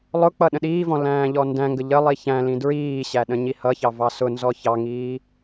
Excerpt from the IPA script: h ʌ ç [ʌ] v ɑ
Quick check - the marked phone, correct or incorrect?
incorrect